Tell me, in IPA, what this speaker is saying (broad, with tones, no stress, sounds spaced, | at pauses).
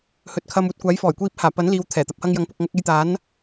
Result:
h ɵ˨˥ t̚ kʰ ɐ˧ m uː˧ t̚ kʷ aː˨˥ j f ɔː˨˩ j kʷ iː˧ p̚ h aː˨˩ p ɐ˨˥ n l iː˨ w t̪ʰ ɛː˨˩ t̪ ɐ˨˥ p̚ h ɐ˧ ŋ j ɐ˨˥ ŋ p ʊ˨ k̚ ŋ ɐ˧ k̚ e˧ j t̪ aː˨˥ n